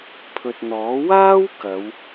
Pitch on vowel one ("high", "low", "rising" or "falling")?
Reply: low